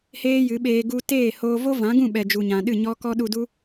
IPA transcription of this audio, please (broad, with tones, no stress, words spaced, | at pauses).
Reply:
heː˦jɨ˨˦ɓeː˧ ɡu˧teː˦˨hoː˧ vo˦vã˨˦ɡũ˦˨ɓɛ˨ d͡ʒu˨ɲã˨ɗɨ˦˨ ɲɔ˦kɔ˦ ɗu˧du˦